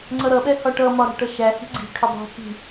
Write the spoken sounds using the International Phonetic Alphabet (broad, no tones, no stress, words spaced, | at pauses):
ŋ͡ǀʌɾʌɓɛ hɒʈʌmɒ ɾa̤ʈʌʃæhi̤ ɡ͡ǀi̤kʰə dˤi̤hi̤